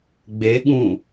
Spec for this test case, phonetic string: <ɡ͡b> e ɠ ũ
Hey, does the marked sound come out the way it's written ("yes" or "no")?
yes